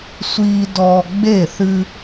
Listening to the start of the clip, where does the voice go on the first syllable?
high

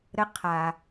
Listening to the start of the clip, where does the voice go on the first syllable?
rising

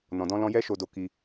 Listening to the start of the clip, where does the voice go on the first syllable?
low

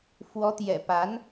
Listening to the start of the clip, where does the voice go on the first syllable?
rising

